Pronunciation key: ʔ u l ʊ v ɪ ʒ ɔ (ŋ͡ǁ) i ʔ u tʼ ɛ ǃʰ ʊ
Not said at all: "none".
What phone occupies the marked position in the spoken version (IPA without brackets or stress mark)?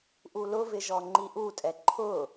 ŋ͡ǃ